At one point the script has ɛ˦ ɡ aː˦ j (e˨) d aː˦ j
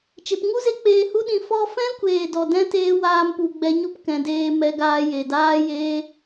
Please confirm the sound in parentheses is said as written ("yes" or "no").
yes